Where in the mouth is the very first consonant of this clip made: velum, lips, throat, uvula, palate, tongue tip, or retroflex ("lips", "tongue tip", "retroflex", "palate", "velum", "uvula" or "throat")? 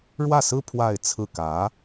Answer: retroflex